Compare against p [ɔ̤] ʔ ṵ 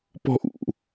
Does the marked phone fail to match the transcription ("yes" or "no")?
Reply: no